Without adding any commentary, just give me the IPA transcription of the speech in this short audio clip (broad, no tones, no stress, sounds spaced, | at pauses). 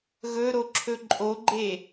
ɣ ɵ ɾ o ǁʰ ɵ ǃʼ o ɡ͡ǃ e